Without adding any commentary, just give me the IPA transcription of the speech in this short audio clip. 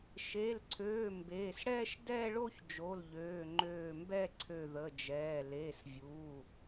ʃ e˩˧˩ l ǀʰ øː˩˧˩ m b eː˩˧˩ s ɽ ɛː˥˧ ʃ d ɛː˥˧ ɭ o˥˧ ç d͡ʒ o˩˧˩ l ʎ øː˩˧˩ ŋ͡ǃ øː˧˩ m b ɛ˥˧ ǀʰ ø˧˩ ð ə˩˧˩ d͡ʒ ɛː˩˧˩ l eː˩˧˩ s vʲ uː˩˧˩

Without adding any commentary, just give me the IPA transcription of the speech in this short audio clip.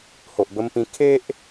h o˨ ʔ b ə˧ m p ĩ˧ kʰ e˦ ʔ

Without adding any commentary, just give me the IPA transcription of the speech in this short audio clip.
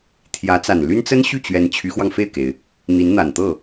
t̪ʰ j ä˧˥ t͡s a˨˩ n l y˥ n t͡s ə˥ n ɕ y˥˩ t͡ɕ ɥ ɛ˧˥ n t͡ɕʰ y˧˥ x w ɑ˧ ŋ f e˥˩ ɪ̯ k e˩ ɪ̯ | n̪ i˧˥ n n̪ a˨˩ n t̪ ɤ˥˩

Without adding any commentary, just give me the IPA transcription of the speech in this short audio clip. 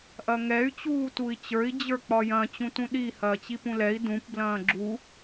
ʔ ɐ ŋ ɛ y̯ t͡ɕ uː t u i̯ t͡ɕ ə˞ i̯ d͡ʑ ə˞ k͡p ɒ j ɐ̃ t͡ɕ ũ t ũ ɗ i h ɐː t͡ɕ i p ũ l ɛ i̯ d ũ p b l ɐ̃ː ɡ͡ǁ u

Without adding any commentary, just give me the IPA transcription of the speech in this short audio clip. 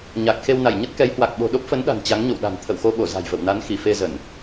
ɲ a˨˩ k̚ x e˧ w n a˧˩ j ɲ ə˦˥ t̚ k ɛ˨˦ j h w a˨˩ k̚ ɓ o̤˨˩ ɗ o˦˥ p̚ f ə˨˦ n ɗ a̤˨˩ n t͡ɕ a˨˦ ŋ ɲ o̰˧˨ w ɗ a̤˨˩ n t̪ʰ ə̰˧˨ w x o˧ ɓ o˧˩ z a̤˨˩ j v ə̰˧˨ w n a˨˦ n x i˧˩ f e˧ z ə˧˩˨ n

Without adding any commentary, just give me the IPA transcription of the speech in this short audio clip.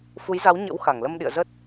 f u˨˦ j z a˨˦ w ɲ ə̰˧˥ w x a˧˩ ŋ l ə˧ m ɗ ḭ˧˨ ə̯ z ə˦˥ t̚

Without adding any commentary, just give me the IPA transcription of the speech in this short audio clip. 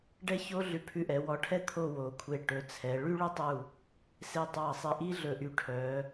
ɖ ɛ˥ ç o˥ ɮ ʉ˧ pʰ ʉ˧ ʔ ɛ˩˧ w ɔ˧ ʈʰ ɛ˥ t̪ʰ o˥˧ w o˩˧ kʷʰ e˧˩ ʈ ɵ˩˧ t͡sʰ ɛ˩˧ ɭ y˥ ɭ ɵ˥ tˤ u˧˩ | s e˧˩ tˤ ɑ˧˩ sˤ e˧ ʔ i˥ ɮ ɵ˧˩ ʔ y˧ ʈʰ œ˩˧

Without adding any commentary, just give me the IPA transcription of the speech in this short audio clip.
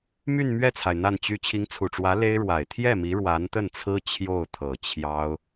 m y˥˧ n m ɥ ɛ˥˩ t͡sʰ a˩ ɪ̯ n̪ a˥˩ n t͡ɕ y˥ t͡ɕʰ i˧˥ ŋ t͡sʰ u˨˩ ʈ͡ʂ w ä˧˥ l e˥ ɪ̯ ɻ w a˨˩ ɪ̯ t̪ʰ j ɛ˥˩ m i˧˥ ɻ w a˧˥ n t̪ ə˥˩ n t͡sʰ ɹ̩˥ t͡ɕʰ j o˥˩ ʊ̯ t̪ʰ ɤ˨˩ t͡ɕʰ j ɑ˥ ʊ̯

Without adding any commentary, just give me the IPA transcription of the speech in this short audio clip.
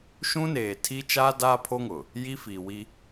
ʃ ũ˦ n eː˨ tʰ i˦ t͡ʃ aː˦ d aː˦ pʰ o˦ ŋ ʊ˨ | j i˦ f iː˨ w i˦

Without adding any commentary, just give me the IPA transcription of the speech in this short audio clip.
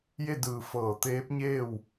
j e˥˨ d ɯː˧˩ f ɤː˧˩ t̪ eː˧˥ p̚ ɲ eː˥˨ w

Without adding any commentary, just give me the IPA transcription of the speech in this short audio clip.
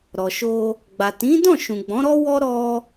ɾ ɔ˨ ʃ o˧ | ɡ͡b a˨ t ĩ˨˦ d ɔ̃˦˨ ʃ ũ˨ ɡ͡b ɔ̃˨˦ ɾ ɔ˦ w ɔ˦ ɾ ɔ˧

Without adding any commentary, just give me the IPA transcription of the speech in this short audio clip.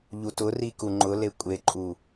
ʎ u t ʊ r i k u ŋ͡ǃ ʊ l e kʷʼ e ǃʼ u

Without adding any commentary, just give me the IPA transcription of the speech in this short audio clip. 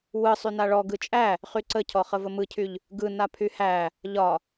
w ɯ sˤ y n a ɭ ɔ ɡ ɯ t͡ʃʼ æ | χ y ǀ ə cʰ ɔ χ ə v ə m ɯ cʰ y ʎ | ɡ ɯ n a pʰ y h æ | ʎ ɒ

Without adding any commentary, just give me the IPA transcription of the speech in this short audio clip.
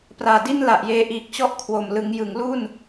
p r aː˨˩ d i˥˩ n l a˨˩ ʔ j eː˧ ʔ iː˨˩ k̚ t͡ɕ ɔ˥˩ ʔ kʰ w o˨˩ m l ɯ˩˦ ŋ j ɯ˩˦ ŋ l u˥˩ n

